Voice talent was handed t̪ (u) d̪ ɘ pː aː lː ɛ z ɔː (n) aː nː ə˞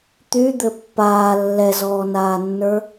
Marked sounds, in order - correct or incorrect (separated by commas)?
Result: incorrect, correct